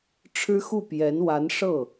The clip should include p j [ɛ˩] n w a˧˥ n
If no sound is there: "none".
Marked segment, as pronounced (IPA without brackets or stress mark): ɛ˧˥